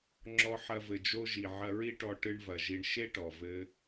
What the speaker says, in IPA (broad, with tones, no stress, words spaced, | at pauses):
ŋ͡ǁɔ˧ħɐ˧vɘ˩ d͡ʒo˧ʒi˩ ʕɐ˧ɹi˥ʈɔ˧ ʈɨ˧ɳvɐ˩ ʒi˧ɳ ʃe˥ʈɔ˩ vɘ˧